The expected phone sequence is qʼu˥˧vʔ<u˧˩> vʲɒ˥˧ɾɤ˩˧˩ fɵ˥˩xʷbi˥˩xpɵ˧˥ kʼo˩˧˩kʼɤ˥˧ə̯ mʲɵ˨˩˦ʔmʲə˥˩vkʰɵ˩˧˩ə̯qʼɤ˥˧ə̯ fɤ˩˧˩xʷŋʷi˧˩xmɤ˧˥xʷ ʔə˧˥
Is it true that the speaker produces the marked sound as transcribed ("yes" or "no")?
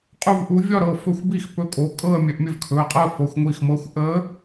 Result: no